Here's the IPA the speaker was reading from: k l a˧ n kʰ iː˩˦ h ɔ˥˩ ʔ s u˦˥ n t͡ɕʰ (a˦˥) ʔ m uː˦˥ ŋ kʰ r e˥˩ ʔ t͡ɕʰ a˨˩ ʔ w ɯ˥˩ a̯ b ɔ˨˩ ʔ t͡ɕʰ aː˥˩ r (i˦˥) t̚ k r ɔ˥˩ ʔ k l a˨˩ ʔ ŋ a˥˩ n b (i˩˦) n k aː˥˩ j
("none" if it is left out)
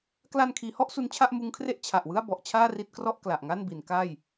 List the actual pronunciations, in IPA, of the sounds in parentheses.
a˥˩, i˦˥, i˩˦

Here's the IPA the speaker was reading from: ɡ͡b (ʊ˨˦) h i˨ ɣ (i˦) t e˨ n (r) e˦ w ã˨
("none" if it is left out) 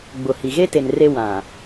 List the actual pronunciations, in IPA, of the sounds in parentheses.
ʊ˨, e˦, r

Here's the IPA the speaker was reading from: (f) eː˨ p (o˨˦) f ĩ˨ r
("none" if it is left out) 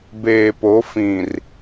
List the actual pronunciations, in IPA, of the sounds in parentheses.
b, o˨˦

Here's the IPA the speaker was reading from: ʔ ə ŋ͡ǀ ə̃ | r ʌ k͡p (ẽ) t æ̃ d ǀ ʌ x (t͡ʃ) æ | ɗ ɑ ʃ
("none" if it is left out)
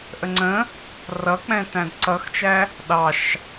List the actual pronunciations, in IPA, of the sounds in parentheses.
ɛ̃, t͡ʃ

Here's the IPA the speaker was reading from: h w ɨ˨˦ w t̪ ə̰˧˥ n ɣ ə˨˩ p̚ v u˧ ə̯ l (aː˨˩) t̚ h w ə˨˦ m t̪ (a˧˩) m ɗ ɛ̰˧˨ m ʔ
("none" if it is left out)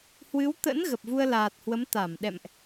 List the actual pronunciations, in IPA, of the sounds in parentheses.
aː˨˩, a˧˩

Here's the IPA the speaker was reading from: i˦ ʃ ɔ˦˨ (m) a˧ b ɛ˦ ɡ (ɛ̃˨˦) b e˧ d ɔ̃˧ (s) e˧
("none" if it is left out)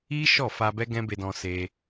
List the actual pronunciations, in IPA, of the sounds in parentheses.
f, ɛ̃˦, s

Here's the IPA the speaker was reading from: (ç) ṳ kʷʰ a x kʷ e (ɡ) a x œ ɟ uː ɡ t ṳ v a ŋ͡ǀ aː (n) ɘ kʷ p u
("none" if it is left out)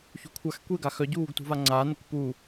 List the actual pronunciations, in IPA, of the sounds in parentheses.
ç, ɡ, n

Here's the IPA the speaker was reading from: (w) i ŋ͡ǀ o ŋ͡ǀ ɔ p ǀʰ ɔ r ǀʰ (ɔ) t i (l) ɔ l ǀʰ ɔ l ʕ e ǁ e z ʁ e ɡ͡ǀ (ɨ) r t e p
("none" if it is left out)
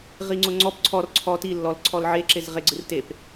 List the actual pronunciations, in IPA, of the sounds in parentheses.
ʁ, ɔ, lː, ɨ

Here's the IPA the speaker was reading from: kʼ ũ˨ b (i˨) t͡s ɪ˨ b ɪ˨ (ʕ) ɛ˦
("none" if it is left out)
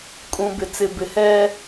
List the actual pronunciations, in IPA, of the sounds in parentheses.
ɪ˨, h

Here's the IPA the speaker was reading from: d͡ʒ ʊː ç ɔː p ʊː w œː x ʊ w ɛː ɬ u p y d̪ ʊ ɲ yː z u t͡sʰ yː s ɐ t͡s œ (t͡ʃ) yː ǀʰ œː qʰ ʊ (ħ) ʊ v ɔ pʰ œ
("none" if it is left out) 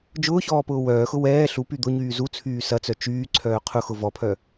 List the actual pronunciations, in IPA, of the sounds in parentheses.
t͡ʃ, x

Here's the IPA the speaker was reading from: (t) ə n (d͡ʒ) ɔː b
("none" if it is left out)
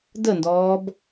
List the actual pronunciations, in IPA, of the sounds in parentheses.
d, d

